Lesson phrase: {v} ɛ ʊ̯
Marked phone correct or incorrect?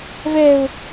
correct